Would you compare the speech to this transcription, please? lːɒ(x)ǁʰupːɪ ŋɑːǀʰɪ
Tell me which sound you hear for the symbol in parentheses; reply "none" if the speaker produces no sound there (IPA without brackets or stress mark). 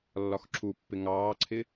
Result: x